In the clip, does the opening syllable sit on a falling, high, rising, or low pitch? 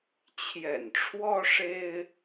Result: low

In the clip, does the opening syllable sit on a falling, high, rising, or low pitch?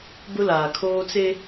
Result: high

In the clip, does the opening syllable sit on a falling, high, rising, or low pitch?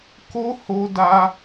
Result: high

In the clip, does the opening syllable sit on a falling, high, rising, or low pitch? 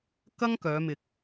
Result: high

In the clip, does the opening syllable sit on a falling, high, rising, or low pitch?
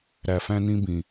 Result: low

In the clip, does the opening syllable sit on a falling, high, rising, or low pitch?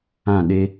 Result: falling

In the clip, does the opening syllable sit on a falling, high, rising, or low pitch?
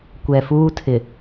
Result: low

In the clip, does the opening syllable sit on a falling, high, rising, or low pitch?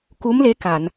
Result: rising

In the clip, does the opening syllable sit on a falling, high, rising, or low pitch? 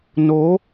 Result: rising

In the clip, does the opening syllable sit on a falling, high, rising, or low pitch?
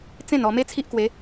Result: falling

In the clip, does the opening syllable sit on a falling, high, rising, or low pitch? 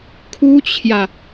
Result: high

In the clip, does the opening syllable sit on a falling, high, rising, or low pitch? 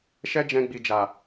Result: high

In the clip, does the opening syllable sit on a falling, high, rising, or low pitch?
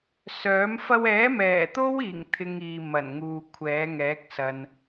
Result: rising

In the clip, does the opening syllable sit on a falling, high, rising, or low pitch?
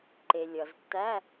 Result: low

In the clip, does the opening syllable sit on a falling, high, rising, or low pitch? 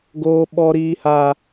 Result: high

